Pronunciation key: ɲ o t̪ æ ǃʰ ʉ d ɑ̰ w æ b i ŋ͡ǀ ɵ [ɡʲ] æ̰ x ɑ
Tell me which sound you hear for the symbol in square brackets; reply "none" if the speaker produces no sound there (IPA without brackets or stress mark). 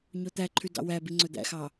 d̪